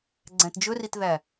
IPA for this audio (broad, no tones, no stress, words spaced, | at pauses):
ɡ͡ǀæ̃td͡ʒɵritðæ